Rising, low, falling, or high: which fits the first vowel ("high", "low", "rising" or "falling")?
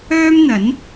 high